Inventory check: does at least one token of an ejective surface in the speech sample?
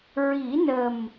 no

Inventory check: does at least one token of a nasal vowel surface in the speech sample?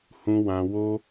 yes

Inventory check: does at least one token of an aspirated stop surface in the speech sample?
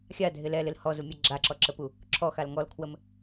yes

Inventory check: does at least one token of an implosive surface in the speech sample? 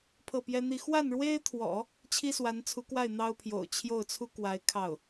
no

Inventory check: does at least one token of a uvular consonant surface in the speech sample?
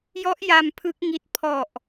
no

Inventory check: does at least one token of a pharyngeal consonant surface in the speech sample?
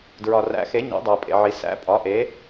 yes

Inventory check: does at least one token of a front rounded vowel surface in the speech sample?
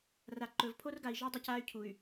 yes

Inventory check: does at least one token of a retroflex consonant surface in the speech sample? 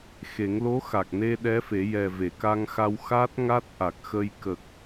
no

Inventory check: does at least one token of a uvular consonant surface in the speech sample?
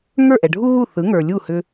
no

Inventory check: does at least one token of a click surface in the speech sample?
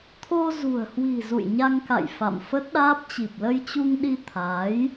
no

